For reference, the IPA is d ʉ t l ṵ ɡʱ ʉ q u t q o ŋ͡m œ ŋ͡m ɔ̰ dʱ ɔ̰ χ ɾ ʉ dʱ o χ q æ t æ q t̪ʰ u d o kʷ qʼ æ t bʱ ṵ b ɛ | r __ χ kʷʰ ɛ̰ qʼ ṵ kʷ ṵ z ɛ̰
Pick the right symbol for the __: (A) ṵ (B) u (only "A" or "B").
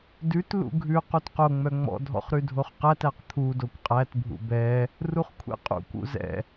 B